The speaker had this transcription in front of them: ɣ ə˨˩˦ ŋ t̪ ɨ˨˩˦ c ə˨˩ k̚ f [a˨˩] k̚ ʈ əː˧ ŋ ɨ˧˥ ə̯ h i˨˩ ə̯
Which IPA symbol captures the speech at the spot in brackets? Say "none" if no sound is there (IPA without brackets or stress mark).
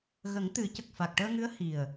a˨˩